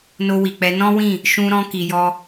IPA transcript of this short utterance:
no˧wi˨k͡pɛ˨˦ nɔ̃˦wĩ˦˨ | ʃũ˧ɾɔ̃˧ ki˨jɔ˧

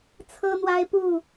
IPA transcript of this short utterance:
t͡sʰɤ˦n̪wa˦ɪ̯pu˥˨

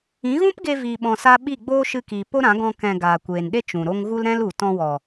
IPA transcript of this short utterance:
ĩ˨˦ɣũ˦pɡe˧ viː˧ɓɔ̃˧sa˦ ɓi˦˨ɡ͡boː˦ʃɨ˧kiː˨ po˦ɾã˨˦ɡɔ̃˧ kɛ̃˨ ɡaː˨kʷeː˨nɗe˦ t͡ʃũ˨ɾo˦ŋ ɣu˦lɾɛ̃˦l u˨tɔ̃˧wɔ˨

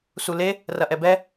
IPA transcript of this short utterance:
sule | rɐʔɛbɛ

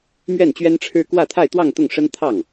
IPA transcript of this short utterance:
mɥɛ˥˩nt͡ɕɥɛ˥nʈ͡ʂʰɻ̩˥ kwä˥˧t̪ʰa˥˧ɪ̯t̪wɑ˥˧ŋ t̪ʊ˥˩ŋʂə˥nt̪ʰɑ˥˩ŋ

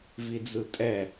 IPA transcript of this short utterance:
vid͡zɯtʼɛ

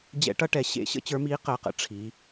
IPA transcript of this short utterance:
d͡ʑɛ̰˦˥ʈʌ˦˥ʈɛ˩˧ ɕḛ˦˥ɕə̰˦˥ t͡ɕə˞˨˥miː˨˥ qəː˩˧qə̰˩˧ ʈ͡ʂʰiː˩˧

